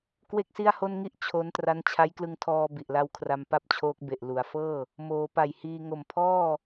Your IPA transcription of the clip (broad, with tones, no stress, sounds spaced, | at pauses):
k w e˥˩ k̚ s i˥˩ a̯ h o˥˩ n ŋ i˥˩ ʔ t͡ɕʰ o˦˥ n t r a˦˥ n t͡ɕʰ a˦˥ j k l ɯ˧ ŋ tʰ ɔː˧ b i˨˩ ʔ l a˦˥ w kʰ r a˧ m p a˥˩ p̚ t͡ɕʰ oː˦˥ k̚ b e˨˩ ʔ l u˩˦ a̯ f ɤː˥˩ | m oː˩˦ p a˨˩ j h iː˧ ŋ o˨˩ m pʰ ɔː˥˩